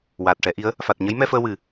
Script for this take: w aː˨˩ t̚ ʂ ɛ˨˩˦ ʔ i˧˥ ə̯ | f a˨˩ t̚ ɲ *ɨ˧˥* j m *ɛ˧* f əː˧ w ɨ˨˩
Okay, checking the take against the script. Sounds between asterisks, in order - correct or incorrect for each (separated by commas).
incorrect, correct